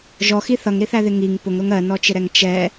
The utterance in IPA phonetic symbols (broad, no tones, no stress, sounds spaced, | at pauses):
ʒ ɔ x i θ ʌ ŋ ɾ i θ æ ð ɪ ŋ i ŋ p ʊ ŋ ɾ ʊ ŋ ɜ n ɔ t͡ʃ ɪ ɾ ɛ ŋ t͡ʃ ɛ